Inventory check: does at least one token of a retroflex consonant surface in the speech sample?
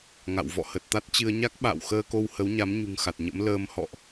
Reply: no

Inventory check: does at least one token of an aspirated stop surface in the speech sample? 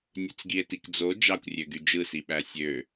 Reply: no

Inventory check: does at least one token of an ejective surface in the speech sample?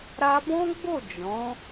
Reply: no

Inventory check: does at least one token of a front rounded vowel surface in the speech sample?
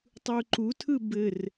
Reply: no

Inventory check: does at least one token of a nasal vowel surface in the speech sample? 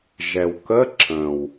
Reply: yes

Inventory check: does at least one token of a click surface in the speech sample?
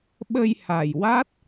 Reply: no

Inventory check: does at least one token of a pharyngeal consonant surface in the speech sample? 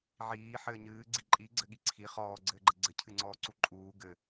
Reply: yes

